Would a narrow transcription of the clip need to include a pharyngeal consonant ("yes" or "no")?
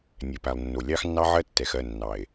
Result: yes